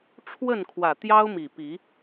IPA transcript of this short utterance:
ʈ͡ʂʰwə˥˨nkʰwä˨˩ t̪jɑ˦ʊ̯mi˨˩pi˨˦

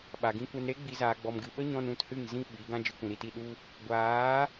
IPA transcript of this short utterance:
ɓa˨ɡĩ˧kʷɛ˧n ɾe˦ɡ͡bi˨zaː˨ ɡ͡bɔ˨mɡɨ˨ɓə˦ɲɔ̃˧n ũ˧thɨ˦˨ŋ zĩ˦ ɓi˨˦ɡã˦ d͡ʒɨ˧kʷĩ˨ɾi˧ti˧ ɗu˦ | ɡʷaː˨˦

